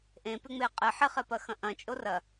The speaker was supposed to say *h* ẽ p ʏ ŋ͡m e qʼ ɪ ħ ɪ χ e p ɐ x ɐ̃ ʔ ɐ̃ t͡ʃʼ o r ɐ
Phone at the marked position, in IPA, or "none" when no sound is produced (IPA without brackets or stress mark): ʔ